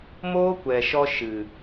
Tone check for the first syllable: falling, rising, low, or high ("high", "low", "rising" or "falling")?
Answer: high